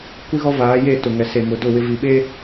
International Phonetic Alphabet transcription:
kʷ i˦ ɣ ɔ˦ v aː˨˦ j e˦˨ t ʊ˨ ŋ ɛ˨ s e˨ m ʊ˨˦ d ʊ˦˨ w ɪ˦ v i˨ ɓ e˦

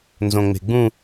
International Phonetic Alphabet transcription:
n z õ ŋ͡m e̤ ɡ͡b ũ

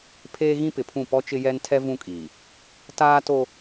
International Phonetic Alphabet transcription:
pʰ eː˦ ɣ ĩ˦ p ɪ˨ pʰ ũ˦˨ p ɔ˦ t͡ʃ ɪ˦ j ɛ˦ n tʰ ɛ˦ v ũ˦ kʼ iː˨ | t aː˦ t o˦

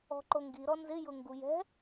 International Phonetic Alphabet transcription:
ɔ̤ ǃ o ŋ ɡ i ɾ ɔ n z ɪ j ʊ ŋ ɡ u j ɛ̤

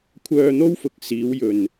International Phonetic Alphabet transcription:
kʷʰ œː˧ n̪ o˥ w f ʊ˨˥ k̚ s iː˨˧ w j ɵ˨ n

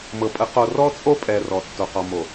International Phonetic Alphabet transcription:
m ɤ˨ pʼ ə˨˦ q o˨ r ɔ˦ t͡sʼ o˦ pʼ ɛ˨ r ɔ˨ tː o˨ q ɔ˨ m o˨

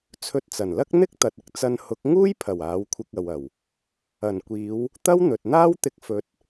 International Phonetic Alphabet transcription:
t͡sʰ ɵ˧ t̚ t͡s ɐ˨˩ n l ɐ˥ k̚ n̪ ɪ˥ k̚ t̪ ɐ˨ t̚ ɪ˧ k̚ t͡s ɐ˧ n h ʊ˨˥ k̚ ŋ uː˥ j pʰ ɐ˨˩ w aː˨˥ w kʷʰ ɪ˧ k̚ ɐ˨ w ɐ˨˩ w | ɐ˨˩ n kʷ iː˨˧ w | t̪ ɐ˥ w n̪ ɵ˨ t̚ n̪ aː˥ w t̪ ɪ˧ k̚ f ɵ˨˥ t̚

